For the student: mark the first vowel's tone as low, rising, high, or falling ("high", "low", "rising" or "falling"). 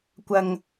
low